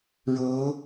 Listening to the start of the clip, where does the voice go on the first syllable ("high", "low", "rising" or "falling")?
rising